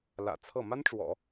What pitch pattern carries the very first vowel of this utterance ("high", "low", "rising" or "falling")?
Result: low